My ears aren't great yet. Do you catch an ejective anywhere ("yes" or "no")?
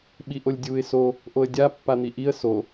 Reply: no